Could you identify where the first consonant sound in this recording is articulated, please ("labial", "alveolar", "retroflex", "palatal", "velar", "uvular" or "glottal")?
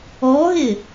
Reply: glottal